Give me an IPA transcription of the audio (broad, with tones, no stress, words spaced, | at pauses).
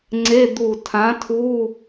ŋ͡ǀe˧˥˧ d̪u˧˩tʰã˨˥tʰu˧˥˧